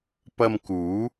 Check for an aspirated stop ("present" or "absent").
absent